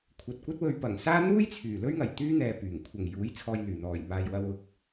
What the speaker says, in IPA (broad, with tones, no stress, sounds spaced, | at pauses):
kʷʰ ɐ˨ t̚ kʷ ɐ˥ t̚ w ɵ˧ ɥ p ɐ˨˩ ŋ s aː˥ n̪ uː˥ j t͡sʰ yː˨˩ l ɵ˥ ɥ ŋ ɐ˨˩ j t̪ yː˥ n̪ ɛː˨ p yː˨˩ ŋ kʷʰ ɐ˨˩ ŋ j uː˨˥ j t͡sʰ ɔː˧ j l yː˨˩ n̪ ɔː˨˩ j m aː˨ j w ɐ˧ w ʊ˧ k̚